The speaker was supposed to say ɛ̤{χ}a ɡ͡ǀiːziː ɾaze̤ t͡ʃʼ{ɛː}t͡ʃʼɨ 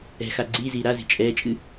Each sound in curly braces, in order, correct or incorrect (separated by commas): incorrect, correct